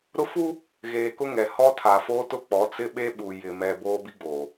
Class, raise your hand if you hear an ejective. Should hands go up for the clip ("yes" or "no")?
no